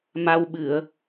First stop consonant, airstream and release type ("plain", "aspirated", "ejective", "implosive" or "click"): implosive